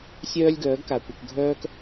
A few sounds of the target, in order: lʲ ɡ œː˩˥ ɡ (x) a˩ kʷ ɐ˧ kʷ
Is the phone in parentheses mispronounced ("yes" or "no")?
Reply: yes